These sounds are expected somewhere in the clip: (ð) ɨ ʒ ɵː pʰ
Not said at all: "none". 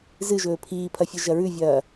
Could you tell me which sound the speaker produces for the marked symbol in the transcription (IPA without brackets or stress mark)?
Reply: z